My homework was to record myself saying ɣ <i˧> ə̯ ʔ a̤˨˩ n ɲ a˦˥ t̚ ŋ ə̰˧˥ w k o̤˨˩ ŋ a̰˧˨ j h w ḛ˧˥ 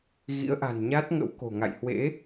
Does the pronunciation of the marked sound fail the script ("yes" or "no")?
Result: yes